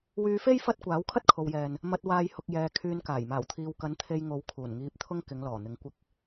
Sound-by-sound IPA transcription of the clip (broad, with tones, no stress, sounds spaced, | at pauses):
w yː˧ f e˥ j f ɐ˥ t̚ kʷ aː˨˥ w kʰ ɐ˥ t̚ kʰ o˨ w j ɛː˨ n | m ɐ˧ t̚ w aː˧ j h ʊ˨ k̚ j ɛː˨ kʰ yː˧ n k aː˨˩ j m aː˨˩ w t̪ʰ iː˨ w k ɐ˨˥ n t̪ʰ e˧ j ŋ o˨˧ w kʰ uː˨˩ n ŋ iː˧ p̚ t̪ʰ ʊ˥ ŋ k ɪ˨˧ ŋ l ɔː˨˩ n̪ ɪ˨˥ ŋ kʷ ɪ˧ k̚